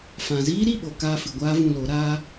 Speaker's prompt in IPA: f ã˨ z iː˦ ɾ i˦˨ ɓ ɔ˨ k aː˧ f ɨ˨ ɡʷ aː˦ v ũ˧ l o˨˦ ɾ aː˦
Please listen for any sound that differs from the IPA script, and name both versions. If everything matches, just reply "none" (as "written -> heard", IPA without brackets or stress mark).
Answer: ɔ˨ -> o˨